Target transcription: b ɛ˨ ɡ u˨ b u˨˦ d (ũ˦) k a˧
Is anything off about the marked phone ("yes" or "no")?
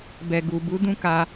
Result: no